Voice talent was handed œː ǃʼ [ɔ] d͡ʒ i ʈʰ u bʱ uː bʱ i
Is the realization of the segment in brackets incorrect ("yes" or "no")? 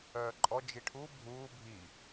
no